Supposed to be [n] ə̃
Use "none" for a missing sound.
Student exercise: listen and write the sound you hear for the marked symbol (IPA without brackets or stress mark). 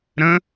ɾ